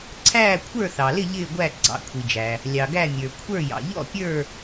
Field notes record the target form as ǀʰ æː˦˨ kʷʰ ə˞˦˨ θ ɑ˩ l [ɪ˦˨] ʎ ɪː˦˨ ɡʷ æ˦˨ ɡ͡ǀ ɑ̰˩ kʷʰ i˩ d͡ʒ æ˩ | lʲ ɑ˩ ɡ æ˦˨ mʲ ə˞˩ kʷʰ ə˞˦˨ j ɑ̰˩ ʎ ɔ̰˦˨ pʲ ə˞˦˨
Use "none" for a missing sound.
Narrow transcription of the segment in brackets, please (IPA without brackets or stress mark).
ɪ˦˨